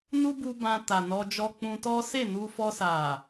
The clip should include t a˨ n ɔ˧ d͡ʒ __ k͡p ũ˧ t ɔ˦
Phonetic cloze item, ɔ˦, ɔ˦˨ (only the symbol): ɔ˦